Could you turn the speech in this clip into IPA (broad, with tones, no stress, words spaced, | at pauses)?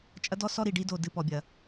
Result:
t͡ʃʼɐ˦dɔ˦ sɔ˦ɾi˨ɖi˦do˨ dɨ˦pɔ˨bʲɐ˨